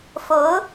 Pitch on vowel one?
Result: rising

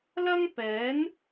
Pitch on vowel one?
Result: high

